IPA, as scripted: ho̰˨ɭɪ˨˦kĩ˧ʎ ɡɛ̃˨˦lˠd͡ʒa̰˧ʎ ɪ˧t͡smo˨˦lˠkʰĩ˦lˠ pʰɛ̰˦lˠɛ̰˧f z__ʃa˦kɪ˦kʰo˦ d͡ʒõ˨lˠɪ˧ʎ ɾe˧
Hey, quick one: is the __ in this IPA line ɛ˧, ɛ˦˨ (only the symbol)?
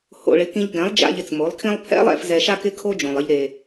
ɛ˧